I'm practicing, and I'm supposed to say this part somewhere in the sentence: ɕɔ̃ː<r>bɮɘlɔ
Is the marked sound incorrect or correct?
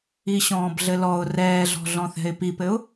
incorrect